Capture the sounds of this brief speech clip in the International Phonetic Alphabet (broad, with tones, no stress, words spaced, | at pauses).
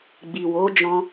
ɡ͡bi˨ wo˨˦d͡ʒɔ̃˧